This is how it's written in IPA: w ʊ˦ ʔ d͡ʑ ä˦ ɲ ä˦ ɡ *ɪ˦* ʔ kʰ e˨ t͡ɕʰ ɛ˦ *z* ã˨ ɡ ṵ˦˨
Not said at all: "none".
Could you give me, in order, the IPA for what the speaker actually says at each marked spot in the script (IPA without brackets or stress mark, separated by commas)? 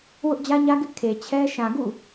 ɪ˦, ʃ